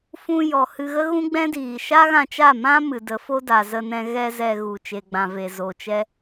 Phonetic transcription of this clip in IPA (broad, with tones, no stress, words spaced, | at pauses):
fũ˧ jɔ˨hɨ˧ ɣə˦ɣũ˦ɡ͡bɛ̃˦diː˨ ʃa˦ɣã˧t͡ʃa˦˨mã˦ mɨ˨ də˨˦fo˦ da˨zə˧ nɛ̃˧ ɣɛ˧ zɛ˧ɣu˨ t͡ʃe˨ɡ͡bã˨ve˨zo˨ t͡ʃɛ˦